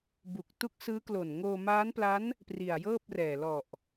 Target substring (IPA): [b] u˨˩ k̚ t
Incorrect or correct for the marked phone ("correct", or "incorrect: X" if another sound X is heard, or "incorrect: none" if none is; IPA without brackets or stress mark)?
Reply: correct